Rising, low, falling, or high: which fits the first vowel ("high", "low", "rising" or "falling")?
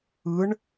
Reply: rising